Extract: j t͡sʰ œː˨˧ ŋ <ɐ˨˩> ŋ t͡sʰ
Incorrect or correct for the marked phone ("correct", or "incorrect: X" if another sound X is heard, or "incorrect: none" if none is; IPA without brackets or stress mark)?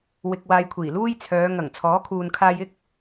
correct